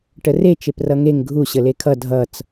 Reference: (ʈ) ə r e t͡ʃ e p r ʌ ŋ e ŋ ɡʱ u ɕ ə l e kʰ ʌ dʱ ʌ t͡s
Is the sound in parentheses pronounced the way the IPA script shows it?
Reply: yes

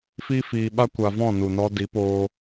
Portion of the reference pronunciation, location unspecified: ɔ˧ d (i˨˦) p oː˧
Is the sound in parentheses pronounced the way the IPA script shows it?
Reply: yes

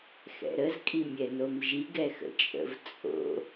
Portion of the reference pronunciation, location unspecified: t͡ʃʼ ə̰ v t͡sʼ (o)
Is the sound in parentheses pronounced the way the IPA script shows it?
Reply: no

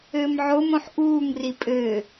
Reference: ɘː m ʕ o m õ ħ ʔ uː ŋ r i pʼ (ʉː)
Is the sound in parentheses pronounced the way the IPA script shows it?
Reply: no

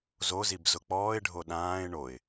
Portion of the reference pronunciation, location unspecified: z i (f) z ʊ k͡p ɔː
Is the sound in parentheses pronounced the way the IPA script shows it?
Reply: no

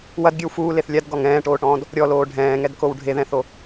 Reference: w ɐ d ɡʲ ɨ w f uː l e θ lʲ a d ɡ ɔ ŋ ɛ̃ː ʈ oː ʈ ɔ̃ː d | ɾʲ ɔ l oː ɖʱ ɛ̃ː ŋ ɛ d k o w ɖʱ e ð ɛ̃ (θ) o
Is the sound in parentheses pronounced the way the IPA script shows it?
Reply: yes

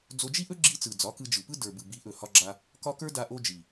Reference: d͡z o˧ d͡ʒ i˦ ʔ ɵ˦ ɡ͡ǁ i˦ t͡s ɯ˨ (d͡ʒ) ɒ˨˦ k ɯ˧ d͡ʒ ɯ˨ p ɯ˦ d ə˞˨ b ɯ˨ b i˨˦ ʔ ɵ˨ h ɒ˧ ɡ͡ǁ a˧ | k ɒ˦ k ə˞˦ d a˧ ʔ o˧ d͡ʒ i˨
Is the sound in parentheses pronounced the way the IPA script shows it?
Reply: no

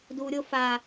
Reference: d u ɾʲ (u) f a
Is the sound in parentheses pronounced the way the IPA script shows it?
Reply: no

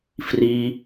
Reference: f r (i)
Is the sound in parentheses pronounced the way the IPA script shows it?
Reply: yes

